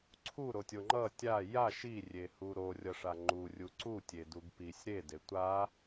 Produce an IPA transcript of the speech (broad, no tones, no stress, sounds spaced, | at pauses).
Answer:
ǀʰ u ɾ o tʲ o ŋ͡ǃ ʌ tʲ a j a ʃ i rʲ e h u ɾ o rʲ ʌ ʂ a ŋ͡ǃ u rʲ u ǀ u tʲ e d u ɡ p i sʲ ɾ e d e tʷ a